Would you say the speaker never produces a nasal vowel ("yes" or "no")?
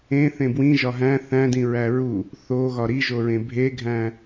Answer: no